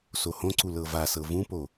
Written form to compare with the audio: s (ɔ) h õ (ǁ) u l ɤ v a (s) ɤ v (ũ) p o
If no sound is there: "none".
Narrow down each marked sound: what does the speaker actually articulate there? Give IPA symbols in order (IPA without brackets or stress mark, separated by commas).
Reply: o, ǀ, s, ũ